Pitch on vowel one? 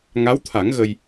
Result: rising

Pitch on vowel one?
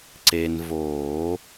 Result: low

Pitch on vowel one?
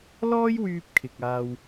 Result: high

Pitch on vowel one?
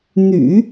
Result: low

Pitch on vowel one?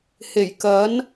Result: low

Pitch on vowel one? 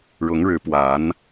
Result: rising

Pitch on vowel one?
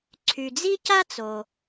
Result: low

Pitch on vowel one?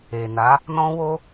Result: low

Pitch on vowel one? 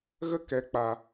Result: high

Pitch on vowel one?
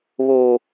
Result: high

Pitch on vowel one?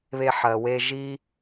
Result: high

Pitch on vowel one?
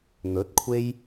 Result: rising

